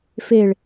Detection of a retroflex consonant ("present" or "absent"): present